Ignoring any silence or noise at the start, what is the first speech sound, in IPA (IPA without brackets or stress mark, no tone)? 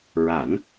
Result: ɹ